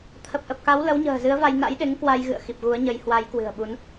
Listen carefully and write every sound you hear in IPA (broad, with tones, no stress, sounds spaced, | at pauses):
t̪ʰ ə˨˩ p̚ ʔ ə˨˩ p̚ k a˨˦ w l ə˨˦ w ɲ ə̤ː˨˩ z ɨ˨˦ ə̯ v a˧ j n a̰˧˥ j ɗ e˨˦ ŋ k w a˧ j ɣ ɨ̰˧˨ ə̯ x i˨˩ p̚ ɣ u˨˦ ə̯ ɲ ə˨˦ j h w a˨˦ j k w ɨ̤˨˩ ə̯ ɓ u˨˦ n